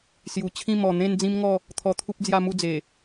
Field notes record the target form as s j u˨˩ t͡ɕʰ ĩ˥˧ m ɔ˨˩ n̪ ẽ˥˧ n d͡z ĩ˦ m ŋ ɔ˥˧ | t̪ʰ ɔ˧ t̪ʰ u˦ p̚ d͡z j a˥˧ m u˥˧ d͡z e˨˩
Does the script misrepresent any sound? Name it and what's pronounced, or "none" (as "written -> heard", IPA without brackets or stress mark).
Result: none